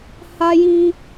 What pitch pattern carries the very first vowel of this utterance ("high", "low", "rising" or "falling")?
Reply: high